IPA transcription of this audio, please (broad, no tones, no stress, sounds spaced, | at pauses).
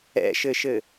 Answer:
ɛ̰ ʃ ɘ ʃ ɘ